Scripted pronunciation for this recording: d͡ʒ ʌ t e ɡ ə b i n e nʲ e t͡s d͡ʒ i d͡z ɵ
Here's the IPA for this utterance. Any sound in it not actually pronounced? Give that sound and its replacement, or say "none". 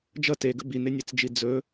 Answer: none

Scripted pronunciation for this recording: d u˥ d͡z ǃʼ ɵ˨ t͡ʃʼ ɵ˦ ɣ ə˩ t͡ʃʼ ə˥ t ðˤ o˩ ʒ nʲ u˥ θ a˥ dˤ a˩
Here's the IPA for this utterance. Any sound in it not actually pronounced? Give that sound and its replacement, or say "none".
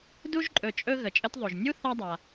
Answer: d͡z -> ʒ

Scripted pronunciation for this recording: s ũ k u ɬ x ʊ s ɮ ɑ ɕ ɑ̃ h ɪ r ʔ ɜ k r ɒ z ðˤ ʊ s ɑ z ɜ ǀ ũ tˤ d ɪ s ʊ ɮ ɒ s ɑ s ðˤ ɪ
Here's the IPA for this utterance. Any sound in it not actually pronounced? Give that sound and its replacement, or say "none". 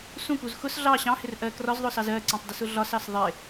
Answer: ɬ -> z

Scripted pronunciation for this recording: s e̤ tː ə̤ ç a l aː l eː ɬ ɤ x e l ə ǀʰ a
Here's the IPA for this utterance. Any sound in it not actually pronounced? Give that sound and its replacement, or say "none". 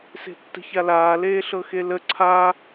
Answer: none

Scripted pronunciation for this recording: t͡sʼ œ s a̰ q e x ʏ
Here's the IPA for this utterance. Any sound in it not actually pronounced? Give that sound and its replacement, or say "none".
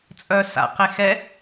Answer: ʏ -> ɛ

